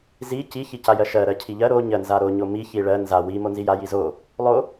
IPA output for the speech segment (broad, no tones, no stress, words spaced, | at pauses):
zi ci çicajɜʃɜ ɾɜcʰiʎɜ ɾo ɲɜnzaɾo ɲomi çiɭɜ nza wi monzija jizo | lˠo